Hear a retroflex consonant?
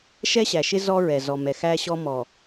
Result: no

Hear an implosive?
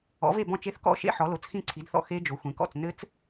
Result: no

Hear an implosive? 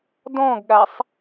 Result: yes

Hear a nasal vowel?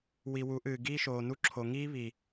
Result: no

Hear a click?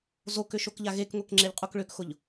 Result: yes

